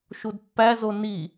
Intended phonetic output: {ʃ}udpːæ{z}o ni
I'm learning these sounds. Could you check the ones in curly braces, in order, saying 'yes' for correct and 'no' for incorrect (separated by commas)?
yes, yes